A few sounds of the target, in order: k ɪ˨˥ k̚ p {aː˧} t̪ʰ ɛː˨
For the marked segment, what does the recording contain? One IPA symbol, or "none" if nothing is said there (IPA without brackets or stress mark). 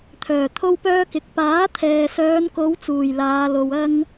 aː˨˥